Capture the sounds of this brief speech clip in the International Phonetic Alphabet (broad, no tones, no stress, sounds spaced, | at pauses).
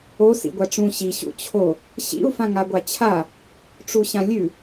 o s ḭ ɡʷ a ʈ͡ʂ ũ ɕ i ɕ ṵ t͡ɕʰ o | ɕ ḭ u̯ f ã ŋ a ɡʷ a t͡ɕʰ a | ʈ͡ʂ u ɕ ã lʲ ʉ